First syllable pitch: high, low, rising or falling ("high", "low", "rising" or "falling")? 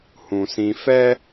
low